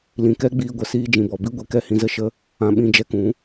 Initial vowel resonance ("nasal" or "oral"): nasal